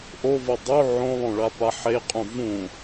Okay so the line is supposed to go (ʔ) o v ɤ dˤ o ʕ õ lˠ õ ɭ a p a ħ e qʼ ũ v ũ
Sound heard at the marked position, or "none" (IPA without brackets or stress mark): ʔ